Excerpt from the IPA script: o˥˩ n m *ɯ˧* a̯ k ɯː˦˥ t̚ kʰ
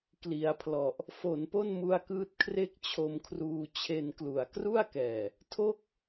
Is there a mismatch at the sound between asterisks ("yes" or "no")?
yes